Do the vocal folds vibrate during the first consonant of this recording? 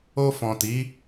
no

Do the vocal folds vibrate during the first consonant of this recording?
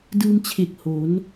yes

